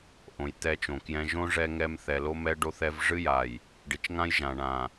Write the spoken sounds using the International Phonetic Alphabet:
ʔ õ˨ j t̪ ɛ˦ t͡ʃ õ˨ k j ɛ̃˦ ʒ õ˦ ʐ ɛ˦ ŋ ɛ˦ m θ ɛ˨ l o˦ m ɛ˦ ɖ o˦ θ ɛ˦ v ʐ ɨ˦ j a˨ j | ɖ i˨ t͡ʃ ŋ ã˦ j ʒ ã˨ ɳ ã˨

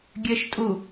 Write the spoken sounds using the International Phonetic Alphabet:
ɡʲ ɘː ʃ tʼ u

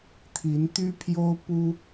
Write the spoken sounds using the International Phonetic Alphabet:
t̪ʰ i˧˥ n t̪ y˥ pʰ j o˥ ʊ̯ p u˥

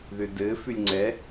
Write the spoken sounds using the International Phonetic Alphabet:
ð ʏ d ɘ f ʉ lʲ ŋ͡ǀ ɛ

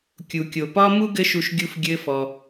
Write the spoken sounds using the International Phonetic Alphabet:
kʲ u˨ kʲ o˨ p ɒ˦ m u˦ ɡ ɘ˦ ʃ u˧ ʃ ɡʲ u˦ f ɡʲ ɘ˦ f ɔ˧

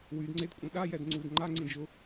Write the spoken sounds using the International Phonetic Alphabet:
w y d ŋ͡ǀ e d kʷʼ ĩ ɗ a j ɛ d ŋ͡ǀ u d ŋ͡ǃ a ŋ͡ǀ ĩ d͡ʒ ʊ

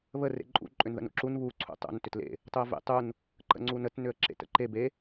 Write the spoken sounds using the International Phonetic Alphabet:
β ə r ḛ ǃʼ ṵ ǃʼ ʏ n ð ə̰ n ṵ ǁ u n β u ǀʰ ṵ tˤ ṵ n t ʏ t l ḛ | tˤ u ə̯ v ḛ tˤ u n | ǃ ə̰ ŋ͡ǀ u n ə t n ʏ ə̯ ǁ ḛ t ə̰ ǃ e b e

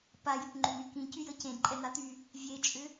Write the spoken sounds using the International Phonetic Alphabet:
p a j ʏ p ŋ͡ǃ ʏ n̪ y k ĩ c y j ə c ẽ d ǃʼ ɛ n̪ a t̪ y | vʲ e t͡ʃʼ ʏ

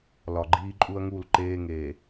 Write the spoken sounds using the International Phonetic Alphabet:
l ɒ˨ ɡ͡ǃ iː˦ ǃʼ u˦ ɐ̯ ŋ u˦˨ l ǃ eː˦ ŋ eː˨

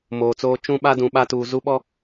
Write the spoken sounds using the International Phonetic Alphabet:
m oː˨ t͡s oː˦ t͡ʃ ũ˦ ɓ a˦ d ũ˨ ɓ a˦ t uː˨ z u˦ ɓ ɔ˦

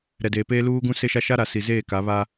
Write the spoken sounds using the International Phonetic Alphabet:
ɾ ɛ˨ d eː˨ p eː˦ l uː˦ ɡ ũ˦ s e˦ ʃ a˦ ʃ a˦ ɾ a˨ s i˨ z eː˦˨ k a˨˦ β a˦

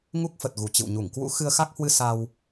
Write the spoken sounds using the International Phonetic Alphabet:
ŋ u˦˥ k̚ f ə˨˩ t̚ ɣ u˨˩ t͡ɕ ɨ̰˧˨ w ɲ u˧˩ ŋ k w ṵ˧˥ x ɨ˧ ə̯ x a˦˥ k̚ h w ɨ˧ s a˧ w

